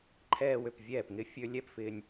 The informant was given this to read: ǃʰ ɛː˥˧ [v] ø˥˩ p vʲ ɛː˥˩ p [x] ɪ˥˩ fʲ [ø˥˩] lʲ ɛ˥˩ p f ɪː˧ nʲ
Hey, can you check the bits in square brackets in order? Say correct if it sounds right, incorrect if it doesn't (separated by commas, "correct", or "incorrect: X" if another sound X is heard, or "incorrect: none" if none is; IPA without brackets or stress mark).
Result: incorrect: w, incorrect: ŋ, incorrect: ø˧